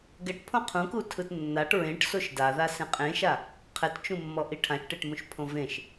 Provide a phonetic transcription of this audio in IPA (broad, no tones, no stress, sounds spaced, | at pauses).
ɡ ɛ ʈ pʰ õ qʰ ũ k u tʰ ɯ t nː a ʈ ɹ ẽ ʈ s o ʃ d a ð a s ẽ qʼ ẽ ʃ a | qʰ ɛ t t͡ʃ ũ mː ɔ ʔ i ʈʰ ã ʃ ʈ e ʈ m ũ ʃ pʰ õ v ẽ ʃ